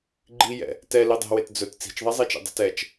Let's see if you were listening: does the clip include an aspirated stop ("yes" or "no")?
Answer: no